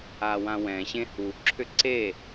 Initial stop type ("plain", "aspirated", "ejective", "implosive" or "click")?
click